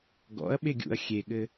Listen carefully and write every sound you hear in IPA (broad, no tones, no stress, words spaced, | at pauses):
ɡɔ̰ɐ̯ ɓeɡʲṵɐ̯ xʲeɠɘ